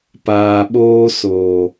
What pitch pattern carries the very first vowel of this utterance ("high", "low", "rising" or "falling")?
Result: low